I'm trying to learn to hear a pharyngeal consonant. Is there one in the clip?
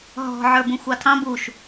yes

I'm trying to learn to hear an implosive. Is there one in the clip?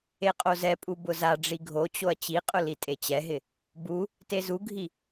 no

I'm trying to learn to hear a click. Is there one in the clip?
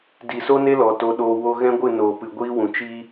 no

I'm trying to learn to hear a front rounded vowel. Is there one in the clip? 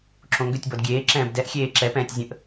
yes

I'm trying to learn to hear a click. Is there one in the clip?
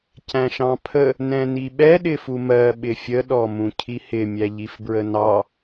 no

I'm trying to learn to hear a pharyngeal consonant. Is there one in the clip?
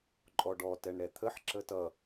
yes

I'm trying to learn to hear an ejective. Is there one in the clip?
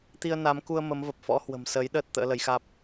no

